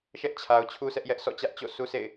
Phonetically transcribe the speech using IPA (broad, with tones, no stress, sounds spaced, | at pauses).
ʃ ɛ˦ ʔ t͡ɕʰ a˨ ʊ̯ t͡ɕʰ u˦ sʰ ɛ˦ ʔ j ɛ˦ ʔ s ɔ̰˦˨ t͡ɕ ä˦ ʔ t͡ɕ o̰˦˨ sʰ u˦ s ḛ˦˨ ɪ̯